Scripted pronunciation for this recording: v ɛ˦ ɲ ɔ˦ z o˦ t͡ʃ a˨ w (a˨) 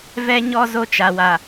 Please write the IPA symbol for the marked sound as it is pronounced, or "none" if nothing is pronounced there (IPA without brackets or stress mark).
a˨